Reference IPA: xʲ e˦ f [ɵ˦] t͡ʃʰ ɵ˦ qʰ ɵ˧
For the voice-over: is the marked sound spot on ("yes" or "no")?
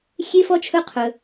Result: no